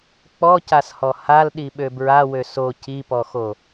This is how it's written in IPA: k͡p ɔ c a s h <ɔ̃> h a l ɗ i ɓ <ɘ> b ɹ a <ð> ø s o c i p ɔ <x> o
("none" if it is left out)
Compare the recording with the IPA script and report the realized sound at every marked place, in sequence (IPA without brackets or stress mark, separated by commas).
ɔ, ø, w, x